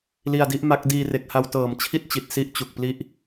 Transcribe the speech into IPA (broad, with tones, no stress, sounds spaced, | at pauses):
l i˧ a̯ d i˥˩ ʔ m a˦˥ k̚ d iː˧ r e˨˩ k̚ h a˧ w t ɤː˨˩ m t͡ɕʰ i˥˩ t̚ t͡ɕ i˨˩ t̚ s i˥˩ ʔ t͡ɕ u˨˩ k̚ p l i˥˩ ʔ